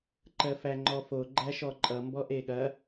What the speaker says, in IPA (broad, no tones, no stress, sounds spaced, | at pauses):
ǃ ɜ f æ ŋ͡ǃ ɔ f o ɡ͡ǃ æ ʃ ɔ ǃʼ ʌ m b ɔ ʔ e ɠ ɐ